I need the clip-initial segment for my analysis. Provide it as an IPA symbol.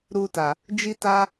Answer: ɾ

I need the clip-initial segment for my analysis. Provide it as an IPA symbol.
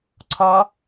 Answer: ǀʰ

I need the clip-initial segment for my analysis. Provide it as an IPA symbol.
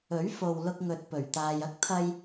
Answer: ɵ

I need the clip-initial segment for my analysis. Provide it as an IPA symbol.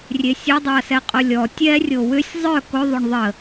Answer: rʲ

